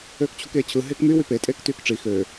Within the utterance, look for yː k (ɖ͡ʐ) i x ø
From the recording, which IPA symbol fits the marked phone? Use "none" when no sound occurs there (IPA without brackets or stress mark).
ʈ͡ʂ